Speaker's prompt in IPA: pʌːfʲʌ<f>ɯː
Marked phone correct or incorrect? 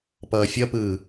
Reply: incorrect